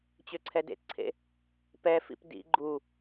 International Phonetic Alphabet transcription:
t͡ɕ ø ǀʰ ɛ d ḛ t ǀʰ ḛ | p ɛ f ḭ p d ḭ ɡ͡ǃ u

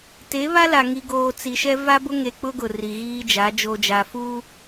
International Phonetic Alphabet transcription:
t e˨˦ β a˦ l a˨ ŋ i˨ ɡ oː˨ t͡s i˨ ʃ ɛ˦ v a˦ b ʊ˦ ŋ e˨ k͡p ʊ˦ ɡ ʊ˨ r i˨ ɣ iː˦ d͡ʒ a˨˦ d͡ʒ oː˨ d͡ʒ a˨ f uː˦

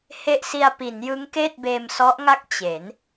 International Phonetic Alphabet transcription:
h e˥˩ ʔ s i˧ a̯ p i˩˦ n j ɯ˦˥ ŋ k eː˥˩ t̚ b eː˧ m s ɔ˦˥ ʔ ŋ a˥˩ k̚ t͡ɕ e˩˦ n

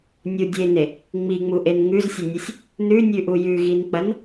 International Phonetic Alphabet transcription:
nʲ u dʲ e n e | ŋ͡m i ŋ͡m u ʔ e n ŋ ʉ z sʲ ɐ nʲ ɐ sʲ | n ʉ nʲ ʉ ʔ u j ʉ ɣ i n k͡p ɐ n

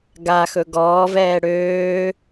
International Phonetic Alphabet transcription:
ɡ a x ɵ ɡ ɔː v ɛː ɽ øː

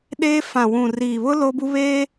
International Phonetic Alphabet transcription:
ɗ eː˦ f ã˨ w ũ˨ r i˨ β ʊ˦ l o˦ b u˦ β eː˦

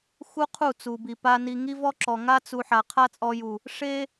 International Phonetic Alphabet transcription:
x u˦ qʰ u˦˨ t͡s u˨ b i˨ p a˧ n i˧ ŋ i˦ v ɔ˦ ǁ ɔ˨ ŋ a˦ t͡s u˧ ħ a˨ qʰ a˦ t͡sʼ ɔ˧ j u˨ | ʂ e˦

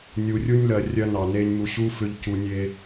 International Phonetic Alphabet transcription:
nʲ u˨ rʲ u˦ nʲ l ɜ˨ rʲ ɜ˦ n ɑ˨ n e˦ nʲ m u˨ ɕ u˦ f ʏ˨ ʎ c u˨ nʲ e˦

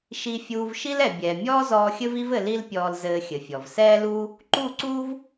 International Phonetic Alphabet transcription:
ʃ i˨ fʲ uː˨ v ʃ i˦ l ɛ˨ bʲ ɛː˨ mʲ ɔː˦ z ɔː˧ xʲ ɘ˦ v i˧ v ɘ˨ l i˦ l pʲ ɔː˧ l z ɘː˧ xʲ ɘ˨ fʲ ɔ˨ v s ɛː˦ l uː˦ | ǃ u˦˨ ǀ uː˦ v

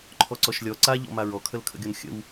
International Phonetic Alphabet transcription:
ǃʰ ɔ ǀ ɔ ʃ lʲ ɔ ǀ a ʎ ɔ̰ m a ɹ ɔ kʰ ə l kʰ ə̰ ɡʲ ɔ n xʲ ə̰ w

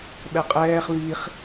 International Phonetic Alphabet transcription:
ɓ ɛ qʼ ɛː χ β i χ

